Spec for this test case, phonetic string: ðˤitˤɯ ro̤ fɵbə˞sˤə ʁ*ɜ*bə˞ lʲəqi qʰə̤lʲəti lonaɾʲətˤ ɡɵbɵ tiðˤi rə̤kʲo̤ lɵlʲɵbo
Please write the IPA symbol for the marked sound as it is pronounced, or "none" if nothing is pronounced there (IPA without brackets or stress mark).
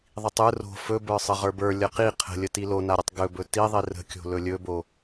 ə˞